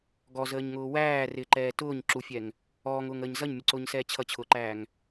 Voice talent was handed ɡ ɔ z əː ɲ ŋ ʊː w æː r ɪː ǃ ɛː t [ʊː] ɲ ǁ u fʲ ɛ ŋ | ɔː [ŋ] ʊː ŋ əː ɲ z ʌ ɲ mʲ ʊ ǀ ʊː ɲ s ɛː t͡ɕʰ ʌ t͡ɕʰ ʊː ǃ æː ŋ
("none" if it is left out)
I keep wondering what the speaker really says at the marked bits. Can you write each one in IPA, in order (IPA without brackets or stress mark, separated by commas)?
ʊː, ŋ